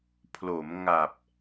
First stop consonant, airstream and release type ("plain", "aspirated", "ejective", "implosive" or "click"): aspirated